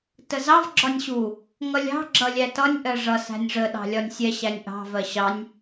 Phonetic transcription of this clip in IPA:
t ə z ɑ v ɡ͡ǁ ɒ nʲ ɕ u | ŋ ʌ lʲ ɑ̤ ɡ͡ǁ ʌ lʲ æ t ʌ nʲ ʔ ɜ ʐ ʌ s æ̤ nʲ ʐ ə ɗ ɑ̤ lʲ ɒ nʲ sʲ ɛ ɕ æ nʲ ʔ ɑ̤ v ɜ ɕ ɑ nʲ

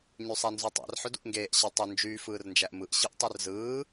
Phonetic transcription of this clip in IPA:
ɲ y sˤ æ n z u tˤ æ̰ r ħ ø d ṵ ʔ ŋ ɡ eː ʔ ɕ ɑ tˤ ø n d͡ʒ yː f ɯː r n d͡ʒ æ ʔ m ɯ ʔ ɕ ɯ ʔ tˤ ø r z ɯː

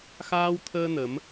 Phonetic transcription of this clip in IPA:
x aː˧ w t̪ʰ əː˧ n ə˨˦ m

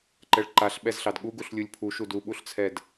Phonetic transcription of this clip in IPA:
ǃ ɛ ɭ ǃ a ɬ ɓ ɛ z ɬ ɑ d ɠ u ɡ u ɬ lʲ u lʲ pʰ u ʃ u d u ɓ u ɬ t͡sʰ ɛ d

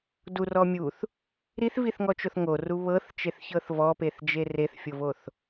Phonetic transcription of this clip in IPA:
d u r ɔ mʲ u θ | ɾ i θ v i θ ŋ ɔ t͡ʃ o θ ŋ o r u β ɤ θ t͡ʃ e θ ç ɤ θ v ɔ p e θ d͡ʒ e r e θ fʲ o v o θ

